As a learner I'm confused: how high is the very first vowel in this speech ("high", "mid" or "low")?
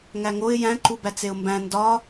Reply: low